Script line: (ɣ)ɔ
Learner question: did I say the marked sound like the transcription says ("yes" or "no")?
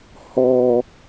no